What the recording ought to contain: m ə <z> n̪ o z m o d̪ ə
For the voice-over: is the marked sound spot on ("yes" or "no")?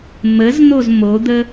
yes